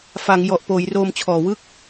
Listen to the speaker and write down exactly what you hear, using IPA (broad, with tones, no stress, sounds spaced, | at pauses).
f a˩˦ ŋ j ɔ˨˩ ʔ p oː˩˦ j r oː˧ m t͡ɕʰ ɔː˨˩ w ɯ˥˩ k̚